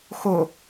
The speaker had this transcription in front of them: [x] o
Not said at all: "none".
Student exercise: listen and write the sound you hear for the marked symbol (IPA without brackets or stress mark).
x